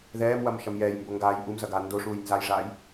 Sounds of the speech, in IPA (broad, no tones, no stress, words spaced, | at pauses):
ðɛːmwɐm ʃɐmjɛːjmbo ŋɡaːj ʔumzɐ ɡaːndoʂuːj nzajʐaːj